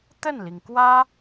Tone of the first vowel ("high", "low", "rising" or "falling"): falling